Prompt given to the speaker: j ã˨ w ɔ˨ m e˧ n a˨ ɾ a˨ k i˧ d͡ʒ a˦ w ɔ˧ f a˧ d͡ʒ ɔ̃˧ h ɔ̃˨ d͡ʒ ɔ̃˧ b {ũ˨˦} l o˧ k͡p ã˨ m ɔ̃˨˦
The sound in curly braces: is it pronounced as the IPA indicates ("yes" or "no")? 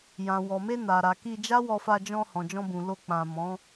no